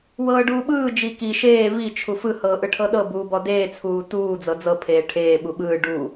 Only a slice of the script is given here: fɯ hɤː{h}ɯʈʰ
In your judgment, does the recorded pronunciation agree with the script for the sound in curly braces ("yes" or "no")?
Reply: no